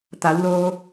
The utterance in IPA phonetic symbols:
t̪a˩˧wloː˧

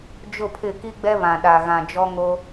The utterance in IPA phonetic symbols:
d͡ʒʊ˦˨pʰɪ˦˨ ki˦ɡ͡bɛ˦βã˨ ɗa˨ɣã˨ d͡ʒɔ˦ŋo˦

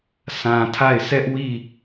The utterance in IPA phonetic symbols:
sʰã˨tʰa˦˨ɪ̯ sʰɛ˦ʔwi˦˨

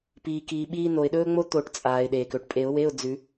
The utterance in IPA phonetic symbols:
piː˩ kiː˩ɓiː˧ no˩ɪ̯ɗɵː˧ŋ͡mo˧ t̪o˨˩˦ʈt͡sʼaː˩ɪ̯ ɗeː˩kɵ˩ʈpʼe˨˩˦ʊ̯we˧˥˧ʊ̯ d͡zʉ˨˩˦

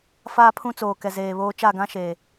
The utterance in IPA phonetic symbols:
faː˦pʰũ˦t͡soː˨kɛ˨ zeː˨βoː˦ t͡ʃa˦˨ɡã˦ ʃe˨

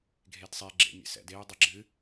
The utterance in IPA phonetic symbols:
ɡʱedsˤe ɡ͡ǁḛmʲḛsɛ̰deʊ̯ dˤeɡ͡ǁɨ

